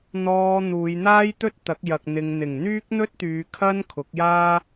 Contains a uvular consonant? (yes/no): no